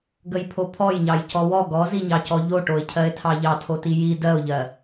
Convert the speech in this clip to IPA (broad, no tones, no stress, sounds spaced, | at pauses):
ɡ ə j pʰ o pʰ ɔ j ɲ ɑ j c ɔ w ɔ ɡ ɔ z i ɲ ɑ c ɔ ʎ o ʈ o ɪ̯ cʰ ɜ ɪ̯ tʰ ɑ ʎ ɑ tʰ o t i j i d ɜ ʊ̯ ʎ ɜ